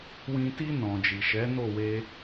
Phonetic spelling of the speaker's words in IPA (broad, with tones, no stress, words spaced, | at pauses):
wĩ˧ ti˧ nɔ̃˨d͡ʒi˨ ʃɛ˨˦ no˦˨we˧